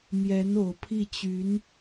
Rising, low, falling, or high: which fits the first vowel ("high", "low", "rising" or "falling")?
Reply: rising